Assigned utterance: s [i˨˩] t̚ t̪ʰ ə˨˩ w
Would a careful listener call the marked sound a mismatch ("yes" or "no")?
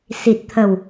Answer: no